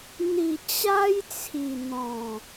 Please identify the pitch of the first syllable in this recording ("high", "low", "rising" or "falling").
low